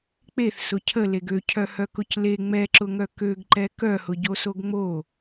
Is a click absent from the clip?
no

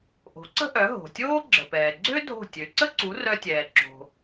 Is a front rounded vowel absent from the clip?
no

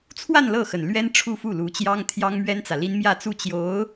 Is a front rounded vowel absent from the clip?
yes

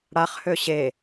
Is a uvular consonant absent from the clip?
no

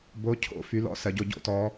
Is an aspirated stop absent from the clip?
no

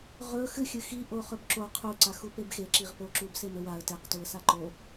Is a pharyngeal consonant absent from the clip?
yes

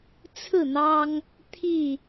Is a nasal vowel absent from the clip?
yes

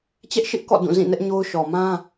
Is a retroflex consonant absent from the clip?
yes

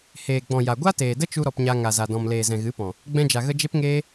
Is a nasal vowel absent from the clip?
no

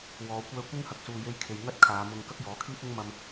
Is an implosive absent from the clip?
yes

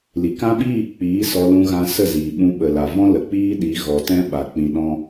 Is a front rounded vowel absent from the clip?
yes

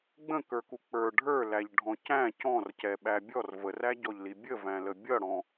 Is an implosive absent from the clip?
no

